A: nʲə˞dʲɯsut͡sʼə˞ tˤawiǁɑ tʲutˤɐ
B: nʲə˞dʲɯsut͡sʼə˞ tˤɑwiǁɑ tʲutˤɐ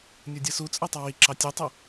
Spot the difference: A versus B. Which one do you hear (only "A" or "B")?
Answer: B